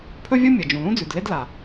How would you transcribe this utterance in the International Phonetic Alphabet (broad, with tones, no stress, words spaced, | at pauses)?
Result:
pʰɵ˥vʲo˥ mʲɐ˩ d͡ʒũ˩lũ˥d͡zʉ˩dle˥d la˩